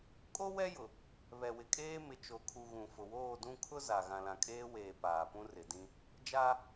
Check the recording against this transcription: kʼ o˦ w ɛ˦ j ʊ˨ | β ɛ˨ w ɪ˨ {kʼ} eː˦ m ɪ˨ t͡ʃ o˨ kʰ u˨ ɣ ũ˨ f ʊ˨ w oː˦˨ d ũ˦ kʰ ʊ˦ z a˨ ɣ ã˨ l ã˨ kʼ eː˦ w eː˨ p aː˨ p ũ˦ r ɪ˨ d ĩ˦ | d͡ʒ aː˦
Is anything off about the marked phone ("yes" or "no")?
no